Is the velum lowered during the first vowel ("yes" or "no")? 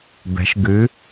no